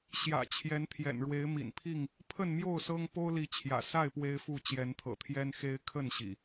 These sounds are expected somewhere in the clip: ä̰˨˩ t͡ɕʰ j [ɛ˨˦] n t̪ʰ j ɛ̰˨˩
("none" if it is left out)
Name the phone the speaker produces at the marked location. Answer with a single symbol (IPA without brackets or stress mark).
ɛ˨˦